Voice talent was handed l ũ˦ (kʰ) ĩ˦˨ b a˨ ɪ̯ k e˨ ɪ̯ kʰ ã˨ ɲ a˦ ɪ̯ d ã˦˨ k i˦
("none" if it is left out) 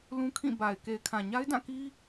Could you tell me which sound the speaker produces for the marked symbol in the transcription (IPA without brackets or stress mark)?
kʰ